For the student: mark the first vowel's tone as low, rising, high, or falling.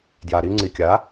low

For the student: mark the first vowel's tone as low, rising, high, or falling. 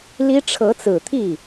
high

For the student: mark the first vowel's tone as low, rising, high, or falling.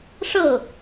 falling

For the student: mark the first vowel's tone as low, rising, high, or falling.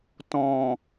low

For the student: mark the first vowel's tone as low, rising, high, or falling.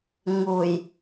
low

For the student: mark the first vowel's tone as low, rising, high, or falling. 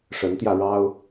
rising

